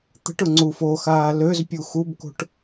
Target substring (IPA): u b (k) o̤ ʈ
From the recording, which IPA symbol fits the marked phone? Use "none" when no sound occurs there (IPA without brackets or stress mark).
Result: k